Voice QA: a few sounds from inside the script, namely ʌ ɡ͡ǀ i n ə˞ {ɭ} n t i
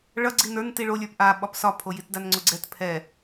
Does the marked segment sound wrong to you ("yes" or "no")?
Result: yes